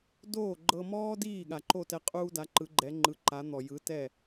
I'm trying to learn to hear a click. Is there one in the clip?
yes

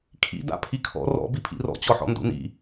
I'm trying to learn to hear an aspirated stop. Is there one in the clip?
yes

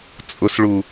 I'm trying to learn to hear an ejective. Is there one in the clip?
yes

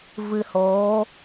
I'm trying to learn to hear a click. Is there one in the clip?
no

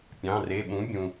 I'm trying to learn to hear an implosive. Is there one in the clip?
yes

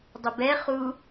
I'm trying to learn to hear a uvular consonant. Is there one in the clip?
yes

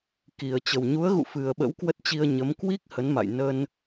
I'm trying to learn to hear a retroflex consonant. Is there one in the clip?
no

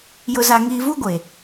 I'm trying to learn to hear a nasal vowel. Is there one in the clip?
no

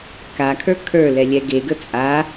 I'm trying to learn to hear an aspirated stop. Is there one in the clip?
yes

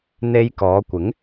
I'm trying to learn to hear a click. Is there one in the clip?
no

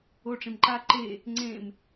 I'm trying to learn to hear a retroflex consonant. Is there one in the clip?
yes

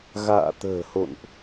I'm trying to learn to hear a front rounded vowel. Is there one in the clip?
no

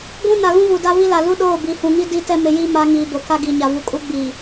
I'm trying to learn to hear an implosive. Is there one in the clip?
yes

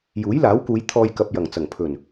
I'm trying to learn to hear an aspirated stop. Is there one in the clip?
yes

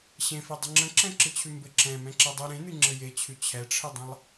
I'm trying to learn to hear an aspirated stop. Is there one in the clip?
yes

